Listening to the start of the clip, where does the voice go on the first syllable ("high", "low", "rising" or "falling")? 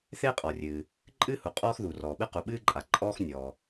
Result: high